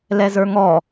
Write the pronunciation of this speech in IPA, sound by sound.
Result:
l ɛ z ə˞ ŋ ɔ

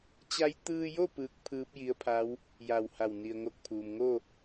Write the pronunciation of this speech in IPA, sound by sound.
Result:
t͡ɕ a˧˥ j t̪ ɯː˧ j o˥˨ p ɯː˧˥ k̚ pʰ ɯː˧˥ p̚ j i˧˥ ə̯ pʰ a˧˥ w | j a˧˩ w h a˧˩ w n i˩ ə̯ ŋ o˧ k̚ pʰ uː˩ m ŋ o˥˨

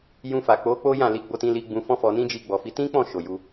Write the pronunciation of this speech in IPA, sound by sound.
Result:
j ũ˧ f a˨ k͡p o˨˦ k͡p o˦ j ã˦˨ l i˨˦ ɡ͡b o˧ t ĩ˧ l i˧ ɡ͡b ũ˧ f ɔ̃˦ f ɔ˧ n ĩ˦ d͡ʒ i˧ ɡ͡b ɔ˨ f i˨˦ t ĩ˦ k͡p ɔ̃˦˨ ʃ o˨ j u˧

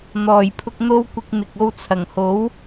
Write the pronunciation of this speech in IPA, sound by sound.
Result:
n̪ ɔː˨˩ j pʰ ʊ˧ k̚ n̪ o˥ w kʷ ɪ˧ k̚ n̪ ɪ˨ k̚ o˧ w t͡sʰ ɐ˨˩ ŋ h o˨˥ w

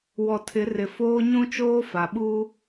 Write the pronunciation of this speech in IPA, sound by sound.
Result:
w ɔ˨ tʰ ɪ˨˦ r ɪ˨ f oː˦ ɲ ũ˦ t͡ʃ oː˦ f a˨ ɓ uː˦

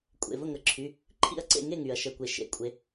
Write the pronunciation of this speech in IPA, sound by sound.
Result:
kʷʼ ḛ˩˧˩ v ə˥˨ ŋ ə˨˩˦ ǁʰ y˩˧˩ | ǃʰ ḭ˥˨ ɐ̯ ǀ ḛ˥˨ ŋ e˥˨ ŋ y˩ ɐ̯ ʃ ə˩˧˩ kʷ e˩ ʃ ḛ˨˩˦ kʷʼ e˨˥

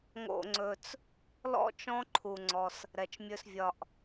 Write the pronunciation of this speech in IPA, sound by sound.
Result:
ŋ o̰˧ ŋ͡ǀ ɵ˧ t͡s | l ɔ̰˦ t͡ʃ ɔ̃˦ ǃʰ u˧ ŋ͡ǀ ɔ˧ s | ɾ ɛ˧ t͡ʃ mʲ ɵ˦ s vʲ ɒ˦ ʔ

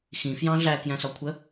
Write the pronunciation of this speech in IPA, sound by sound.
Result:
x ĩ f j ɑ̃ ɮ æ k j æ̃ s ɒ kʷʰ ə

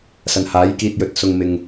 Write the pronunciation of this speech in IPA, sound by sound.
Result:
s ɐ˨ n h aː˨˥ j k iː˧ t̚ j ɵ˨ t̚ s ʊ˨ ŋ m ɪ˨ ŋ

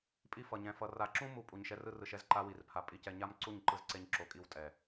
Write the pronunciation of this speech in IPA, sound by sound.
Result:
pʼ i˦ f ʌ˧ ɲ ɛ̃˧ f ʌ˧ r a˧ ǁ ũ˦ m u˧ pʼ u˧ ɲ ʃ ɛ˦ r ɯ˦ r ɯ˧ ʃ ɛ˦ z ǃ a˦ w i˧ r pʰ a˧ pʼ i˧ c ɛ˧ ɲ a˦ m ǀ u˦˨ ɲ ǃ ɯ˧ z ǀ e˧ ɲ ǁ o˧ kʼ i˦˨ w tʼ ɛ˨

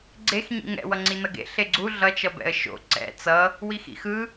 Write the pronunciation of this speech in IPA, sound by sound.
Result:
ɡ͡ǀ e x ɲ ḭ ŋ ɛ̰ w ʌ ŋ͡ǀ i n ʌ ɡ ḛ ɬ e ɡ͡ǀ u ɮ ʌ t͡ʃ ʌ b ɛ̰ ə̯ ʃ o̰ ǀ ɛ̰ t͡s ʌ | w i x ḭ x ɯ

